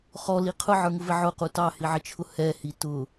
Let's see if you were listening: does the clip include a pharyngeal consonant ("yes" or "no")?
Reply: yes